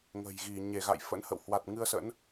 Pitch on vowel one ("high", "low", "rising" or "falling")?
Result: low